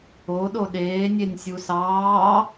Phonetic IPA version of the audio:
o ɗ o ɗ eː nʲ e nʲ sʲ u s ɑː

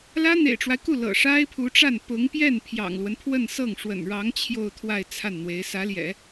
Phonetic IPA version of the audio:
l ä˥ n̪ ḛ˨˩ ɪ̯ ʈ͡ʂ w a˦ ɪ̯ k u˥˩ l ɤ̰˨˩ ʂ a˥ ɪ̯ pʰ u˧˥ ʈ͡ʂ a˥˩ n p ʊ˧˥ ŋ p j ɛ˥˩ n pʰ j ɑ̰˨˩ ŋ l w ə˦ n pʰ w ə˥˧ n s ɤ˥˩ ŋ ʂ w ə̰˨˩ n ɻ ɑ˧˥ ŋ t͡ɕʰ j o˥˧ ʊ̯ t̪ʰ w a˥˧ ɪ̯ t͡sʰ a˥˩ n n̪ w e˧˥ ɪ̯ s ä˧˥ l j ɛ̰˨˩˦

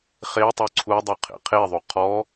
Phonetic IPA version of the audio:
χ e tˤ œ ǀʰ u dˤ u qʰ ḛ qʰ e ðˤ u qʰ ɔ

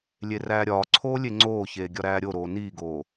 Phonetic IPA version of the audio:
lʲ e r æː ɾʲ ɒː ǀʰ oː lʲ e ŋ͡ǀ oː ç eː ɡʲ ɒ ɾ æː ɾʲ o ɾ oː n iː ɡ oː

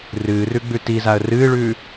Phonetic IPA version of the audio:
r ɨː r ʉ ɡ͡b ʉ t i z a ə̯ r ɨː ɭ ʉː

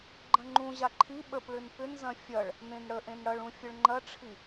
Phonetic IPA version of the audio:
ɡ͡ǃ ɐ̃ ŋ͡ǃ ũ ʑ a ǃʰ i ɓ ə p ɭ ʏ n p ʏ n z ɐ̃ fʲ ɐ ɭ | n ẽ n ɽ ə ʔ ẽ n ɽ ɐ ɭ ũ fʲ ə ɭ ŋ͡ǃ ɐ ʈ͡ʂʰ i

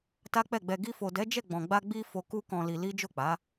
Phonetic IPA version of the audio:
t a˦ k͡p ɛ˦˨ ɡ͡b ɛ˧ ɡ i˧ f o˨ d ɛ˨˦ d͡ʒ ɛ˦˨ ɡ͡b ɔ̃˨ ɡ͡b a˧ ɡ͡b i˧ f o˧ k u˦ k ɔ̃˧ l i˧ l i˦ d͡ʒ o˦˨ k͡p a˨˦

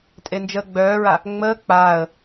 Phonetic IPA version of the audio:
tʼ e n d͡ʒ əː ɡ͡b œː ɹ a | ŋ͡m əː k͡p aː ə̯

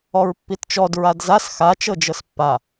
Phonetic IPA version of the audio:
ɔ ɹ pː i t t͡ʃ ɔ d ɹ a d z a s x a t͡ʃ ɤ d͡ʒ ɤ s pː a

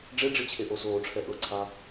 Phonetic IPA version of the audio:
ɖ͡ʐ e ɖ͡ʐ i t͡ɕʰ e ʔ o s oː ʈ͡ʂʰ ɛ ʔ ɤ ǀʰ a

